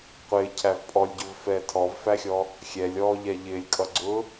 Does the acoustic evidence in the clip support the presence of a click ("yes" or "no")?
yes